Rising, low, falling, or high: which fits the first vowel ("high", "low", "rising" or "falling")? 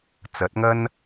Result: rising